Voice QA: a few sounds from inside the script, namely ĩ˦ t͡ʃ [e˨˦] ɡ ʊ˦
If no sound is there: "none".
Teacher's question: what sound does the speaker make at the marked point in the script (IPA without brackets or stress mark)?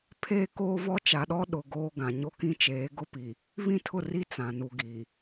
eː˨˦